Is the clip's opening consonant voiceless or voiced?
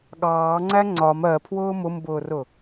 voiced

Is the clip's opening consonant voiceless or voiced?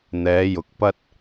voiced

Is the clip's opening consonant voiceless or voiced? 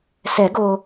voiceless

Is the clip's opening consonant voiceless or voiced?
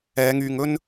voiced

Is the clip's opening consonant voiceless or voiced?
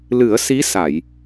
voiced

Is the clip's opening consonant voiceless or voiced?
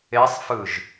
voiceless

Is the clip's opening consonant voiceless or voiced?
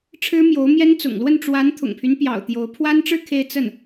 voiceless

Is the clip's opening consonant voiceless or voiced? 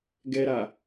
voiced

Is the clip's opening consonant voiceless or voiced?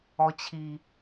voiceless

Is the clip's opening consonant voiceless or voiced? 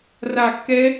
voiced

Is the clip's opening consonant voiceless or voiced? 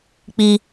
voiceless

